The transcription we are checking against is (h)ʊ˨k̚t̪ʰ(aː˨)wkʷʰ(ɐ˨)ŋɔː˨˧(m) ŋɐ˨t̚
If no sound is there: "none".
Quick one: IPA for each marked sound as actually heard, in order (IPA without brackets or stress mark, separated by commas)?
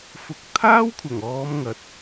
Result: f, aː˥, ɐ˨˩, m